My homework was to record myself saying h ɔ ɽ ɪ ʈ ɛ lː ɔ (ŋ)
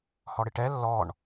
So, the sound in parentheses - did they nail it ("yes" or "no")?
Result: no